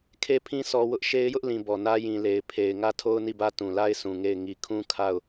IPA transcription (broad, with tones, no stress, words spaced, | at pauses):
kʰe˦pʰĩ˦ sɔ˦wʊ˦ʔ ʃe˦ɪ̯jʊ˦ʔlĩ˨ bɔ˨nä˦ jĩ˨le˨ɪ̯ pʰe˨ɪ̯ ŋä˦tʰo˦ʊ̯ ni˦˨bä˦ tũ˨la˦ɪ̯sũ˨ ŋe˦˨ɪ̯ ŋi˨kʰũ˦ kʰa˦˨ʊ̯